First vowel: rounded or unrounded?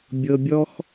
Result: unrounded